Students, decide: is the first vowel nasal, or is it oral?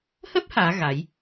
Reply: oral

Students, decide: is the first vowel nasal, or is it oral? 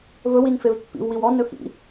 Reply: oral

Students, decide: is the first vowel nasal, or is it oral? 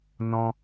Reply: nasal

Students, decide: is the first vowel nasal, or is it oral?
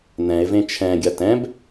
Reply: nasal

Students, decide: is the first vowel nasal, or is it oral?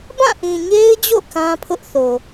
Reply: nasal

